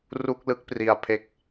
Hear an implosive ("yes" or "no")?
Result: no